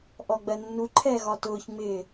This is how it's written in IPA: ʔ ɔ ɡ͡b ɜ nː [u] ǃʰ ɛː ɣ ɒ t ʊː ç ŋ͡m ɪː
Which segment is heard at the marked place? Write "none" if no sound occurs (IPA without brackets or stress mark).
u